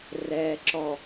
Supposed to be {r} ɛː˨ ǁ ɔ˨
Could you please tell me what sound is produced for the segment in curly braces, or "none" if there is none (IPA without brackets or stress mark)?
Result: r